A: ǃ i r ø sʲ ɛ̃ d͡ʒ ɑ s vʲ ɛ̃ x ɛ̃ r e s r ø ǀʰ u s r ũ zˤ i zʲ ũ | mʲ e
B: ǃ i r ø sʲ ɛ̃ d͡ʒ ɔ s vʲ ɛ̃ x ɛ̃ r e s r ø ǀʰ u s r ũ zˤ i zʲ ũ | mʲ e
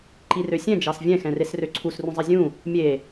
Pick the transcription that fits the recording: A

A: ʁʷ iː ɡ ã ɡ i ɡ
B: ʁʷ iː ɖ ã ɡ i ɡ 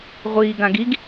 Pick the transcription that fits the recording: A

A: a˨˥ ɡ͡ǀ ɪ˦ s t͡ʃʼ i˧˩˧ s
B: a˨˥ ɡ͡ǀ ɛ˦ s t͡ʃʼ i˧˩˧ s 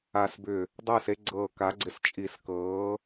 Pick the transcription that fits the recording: A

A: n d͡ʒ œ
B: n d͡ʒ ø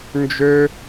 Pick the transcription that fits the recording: B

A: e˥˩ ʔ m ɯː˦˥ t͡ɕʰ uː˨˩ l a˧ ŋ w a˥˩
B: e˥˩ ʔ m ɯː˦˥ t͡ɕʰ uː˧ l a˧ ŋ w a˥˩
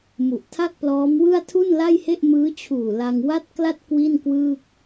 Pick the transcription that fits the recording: A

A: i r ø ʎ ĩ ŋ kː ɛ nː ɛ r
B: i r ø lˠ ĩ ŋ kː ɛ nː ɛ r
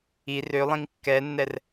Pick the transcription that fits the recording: B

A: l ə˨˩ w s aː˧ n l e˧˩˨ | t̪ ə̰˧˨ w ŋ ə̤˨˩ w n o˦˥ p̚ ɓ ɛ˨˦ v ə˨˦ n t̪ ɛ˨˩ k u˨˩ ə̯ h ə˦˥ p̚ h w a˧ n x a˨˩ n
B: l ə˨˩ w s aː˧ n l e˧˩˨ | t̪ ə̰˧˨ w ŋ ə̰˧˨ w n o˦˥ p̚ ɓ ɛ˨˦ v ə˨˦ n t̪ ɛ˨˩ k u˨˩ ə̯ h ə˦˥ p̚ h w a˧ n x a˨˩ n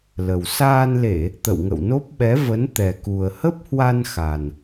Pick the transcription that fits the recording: B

